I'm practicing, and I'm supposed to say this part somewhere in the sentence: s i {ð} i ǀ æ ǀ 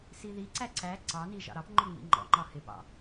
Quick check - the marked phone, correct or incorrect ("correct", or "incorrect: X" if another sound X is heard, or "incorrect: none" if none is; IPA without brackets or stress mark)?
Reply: correct